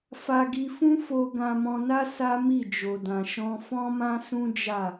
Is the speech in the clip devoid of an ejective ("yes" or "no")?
yes